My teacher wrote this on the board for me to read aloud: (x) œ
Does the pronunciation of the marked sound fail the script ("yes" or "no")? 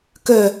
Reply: yes